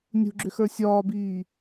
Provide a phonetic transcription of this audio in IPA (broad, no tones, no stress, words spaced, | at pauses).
nʲṳɡ͡ǁʏxə˞ sʲɒːbiː